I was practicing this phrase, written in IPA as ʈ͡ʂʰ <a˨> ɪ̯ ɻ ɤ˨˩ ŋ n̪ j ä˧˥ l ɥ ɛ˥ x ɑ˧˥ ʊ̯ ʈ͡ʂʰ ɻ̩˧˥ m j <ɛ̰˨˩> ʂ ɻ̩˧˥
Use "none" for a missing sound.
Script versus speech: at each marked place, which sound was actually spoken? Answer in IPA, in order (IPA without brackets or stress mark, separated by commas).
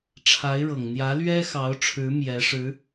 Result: a˧˥, ɛ˧˥